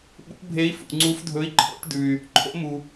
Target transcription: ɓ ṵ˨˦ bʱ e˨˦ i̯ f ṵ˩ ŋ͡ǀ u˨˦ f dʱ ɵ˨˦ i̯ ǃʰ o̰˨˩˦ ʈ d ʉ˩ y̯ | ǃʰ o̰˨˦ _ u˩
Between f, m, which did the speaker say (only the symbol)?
m